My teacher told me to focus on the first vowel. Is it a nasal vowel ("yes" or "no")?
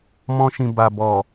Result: yes